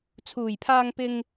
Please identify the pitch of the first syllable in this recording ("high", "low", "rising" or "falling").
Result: low